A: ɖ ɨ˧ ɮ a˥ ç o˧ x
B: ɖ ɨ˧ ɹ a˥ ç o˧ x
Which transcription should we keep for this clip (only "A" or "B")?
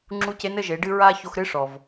B